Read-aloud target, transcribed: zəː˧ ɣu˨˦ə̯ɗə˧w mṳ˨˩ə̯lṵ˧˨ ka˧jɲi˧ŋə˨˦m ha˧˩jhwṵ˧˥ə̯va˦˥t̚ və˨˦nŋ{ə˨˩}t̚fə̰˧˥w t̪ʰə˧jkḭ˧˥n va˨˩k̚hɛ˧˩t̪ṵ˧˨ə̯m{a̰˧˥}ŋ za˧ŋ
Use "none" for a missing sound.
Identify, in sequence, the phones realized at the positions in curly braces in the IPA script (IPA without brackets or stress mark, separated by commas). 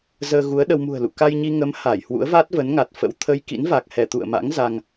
a˨˩, a̰˧˥